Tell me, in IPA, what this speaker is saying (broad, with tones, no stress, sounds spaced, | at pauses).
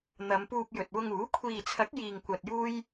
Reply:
n̪ ɐ˨˧ m p uː˧ p̚ j ɵ˨ t̚ w ʊ˧ ŋ uː˨˥ kʷʰ iː˨ t͡sʰ ɐ˨˥ k̚ j iː˨ ŋ kʷ ɐ˧ t̚ j uː˥ j